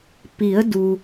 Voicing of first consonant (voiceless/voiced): voiceless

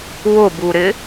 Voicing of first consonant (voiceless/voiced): voiced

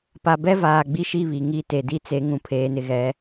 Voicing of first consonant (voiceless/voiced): voiceless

